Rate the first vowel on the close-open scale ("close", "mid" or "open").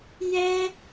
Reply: mid